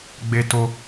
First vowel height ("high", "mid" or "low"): mid